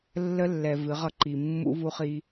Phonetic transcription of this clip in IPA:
lː ə˦ lː ɛ˨ v ɨ˨˦ ʁ ʌ˦ ǃ i˨ mː ṵ˦ v u˦ χ i˦

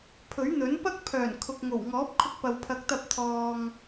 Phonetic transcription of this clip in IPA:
pʰ ɵ˨˥ ɥ n̪ ɵ˨˥ n p ɐ˥ k̚ pʰ œː˨˩ n kʰ ʊ˨ k̚ ŋ o˨˩ w ŋ ɔː˨˥ p̚ kʰ ʊ˧ k̚ p ɐ˨ w pʰ ɐ˨˥ k̚ t̪ ɐ˧ p̚ t̪ʰ ɔː˨ ŋ

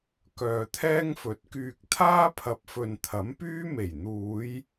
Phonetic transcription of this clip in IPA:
k œː˨ t̪ʰ ɛː˥ ŋ f ɵ˨˥ t̚ k yː˧ k̚ t̪ʰ aː˥ pʰ ɐ˨ p̚ f ɵ˨ n t̪ʰ ɐ˨˥ m p yː˥ m e˨˩ j n̪ uː˨˧ j

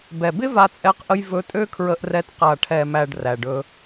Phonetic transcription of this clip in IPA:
b ɛ˨ b ɪ˦ v a˧ t͡sʼ ɛ˧ q ʔ ə˧ j v ɵ˧ tʼ ø˦ kʰ ɹ ə˧ ʔ r ɛ˧ t q a˨ ʈʰ ɛ˨ m æ˨ ɖ r æ˨ ɖ ɵ˧

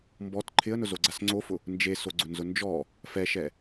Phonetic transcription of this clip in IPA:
m b ɔ t ǃʰ ɪ ə̯ n ʊ z o ɡ͡ǀ a s ŋ͡ǀ o f ʊ | n d͡ʒ e s o ɡ͡ǀ ʊ n z ʊ n d͡ʒ ɔ | f ɛ ʃ ɛ

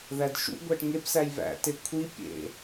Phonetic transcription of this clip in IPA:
ð æ d ʃ ṵ ɡʷ æ ʈ ŋ e p s æ j β æ̰ t e kʷʰ i pʲ ḛ

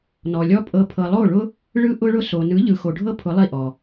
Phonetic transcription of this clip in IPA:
n ɔ˨ lʲ ɔ˦ pʼ ɤ˧ pʰ ɤ˨ lˠ o˦˨ ɭ ʊ˦ | ɭ ɯ˧ ʔ ʊ˧ ɭ ʊ˧ s o˨ n ɯ˨˦ ʎ ɯ˨ x o˨ ɖʱ ɤ˦ pʰ ʊ˨˦ lˠ i˦˨ ʔ ɔ˨

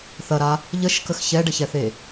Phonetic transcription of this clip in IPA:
θ ɐ ɾ a | ʎ ə ʃ k ə x ç ɛ ɖ ə ç ɛ θ e

